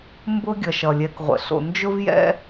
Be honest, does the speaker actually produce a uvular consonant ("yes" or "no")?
yes